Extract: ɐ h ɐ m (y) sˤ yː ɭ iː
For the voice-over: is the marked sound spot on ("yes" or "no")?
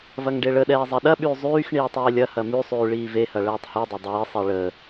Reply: yes